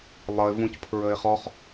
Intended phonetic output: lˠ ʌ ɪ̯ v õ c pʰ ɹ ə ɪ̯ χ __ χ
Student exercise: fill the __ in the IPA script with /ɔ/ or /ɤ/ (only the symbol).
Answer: ɔ